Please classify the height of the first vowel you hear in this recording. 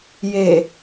mid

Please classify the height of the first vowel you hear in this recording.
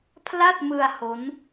low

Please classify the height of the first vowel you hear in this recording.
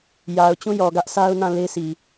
low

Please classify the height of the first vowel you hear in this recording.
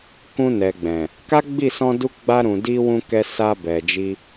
high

